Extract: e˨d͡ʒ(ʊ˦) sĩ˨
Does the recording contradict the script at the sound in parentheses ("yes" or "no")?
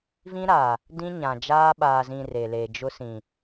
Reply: no